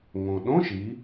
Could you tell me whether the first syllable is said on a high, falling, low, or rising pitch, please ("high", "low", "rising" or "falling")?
low